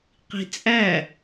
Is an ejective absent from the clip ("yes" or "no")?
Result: no